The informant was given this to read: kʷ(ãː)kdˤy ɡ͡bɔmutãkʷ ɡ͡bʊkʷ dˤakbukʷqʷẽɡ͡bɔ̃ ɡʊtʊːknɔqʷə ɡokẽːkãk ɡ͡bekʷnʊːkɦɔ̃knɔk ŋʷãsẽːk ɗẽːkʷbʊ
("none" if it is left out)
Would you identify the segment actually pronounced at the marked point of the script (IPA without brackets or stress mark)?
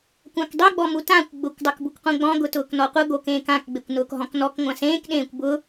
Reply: ã